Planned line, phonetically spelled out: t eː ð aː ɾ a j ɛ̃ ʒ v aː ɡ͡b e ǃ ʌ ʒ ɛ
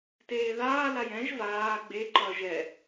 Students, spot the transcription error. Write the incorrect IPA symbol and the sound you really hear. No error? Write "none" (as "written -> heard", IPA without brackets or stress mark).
ɾ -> l